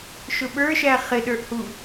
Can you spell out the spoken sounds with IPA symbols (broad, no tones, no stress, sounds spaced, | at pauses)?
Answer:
ʃ ʊ ɓ ə˞ ʃ æ χ ɪ ɗ ə˞ ʔ h u